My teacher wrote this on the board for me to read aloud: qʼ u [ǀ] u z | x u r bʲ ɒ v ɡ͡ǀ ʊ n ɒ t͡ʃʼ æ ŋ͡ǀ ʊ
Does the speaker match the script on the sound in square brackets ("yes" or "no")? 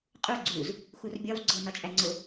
no